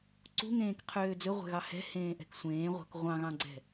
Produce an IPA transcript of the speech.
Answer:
ǀ ṳ ŋ ẽː k qʰ øː d͡z ɵ ʁʷ ɛ̤ ɣ ɑ h ɛ̤ h ẽː ʔ ɛ̤ k sʷ ẽː ʁʷ ɑ̤ k ʁʷ ɑ̃ ɣ ɑ̃ ɡ͡ǀ ɛ̤

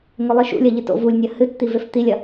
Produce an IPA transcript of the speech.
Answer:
ŋ ɵ lˠ ɨ ʃ ṵ lʲ ɐ ʎ ɨ t o̰ v u lʲ nʲ ɐ h ɨ t t̪ i v e f t̪ i lʲ ɐ

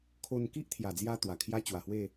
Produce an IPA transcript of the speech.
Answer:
kʰ o˧ n k i˦ ʔ t̪ʰ j a˨˩ d͡z j a˧ t̪ w a˨˩ kʰ j a˦ t͡ɕ w a˨˩ h w e˥˧

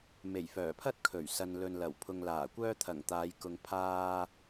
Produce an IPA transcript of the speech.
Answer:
m e˨˩ j f œː˨˩ pʰ ɐ˥ t̚ kʰ ɵ˨˩ ɥ s ɐ˨ n l ɵ˨ n l ɐ˨˩ w pʰ ʊ˨ ŋ l aː˨˩ kʷ œː˥ t̪ʰ ɐ˨˩ ŋ t̪ aː˨˧ j k ʊ˨ ŋ pʰ aː˧

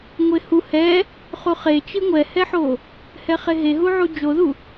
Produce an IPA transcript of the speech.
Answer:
ŋʷ e h u h ɛ | χ u χ e t͡ʃ i ŋʷ ɛ h ɛ ħ o | h ɛ χ e ɦ e ɦ u ʕ u d͡ʒ o ð u

